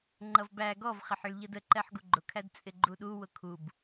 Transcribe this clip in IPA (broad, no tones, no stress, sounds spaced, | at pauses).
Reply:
ŋ͡ǃ ʌ v b æ ɡ ɔ v χ ɪ ħ ə ɭ ʎ ʌ d ə ǃ ɛ ħ ɡ u ɡ͡ǃ ʊ kʰ æ d t͡sʼ ɪ ɡ͡ǃ u ɗ u w ʊ kʰ u b